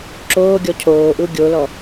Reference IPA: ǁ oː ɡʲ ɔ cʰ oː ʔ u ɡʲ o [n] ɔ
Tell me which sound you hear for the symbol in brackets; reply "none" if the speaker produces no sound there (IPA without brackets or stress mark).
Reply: l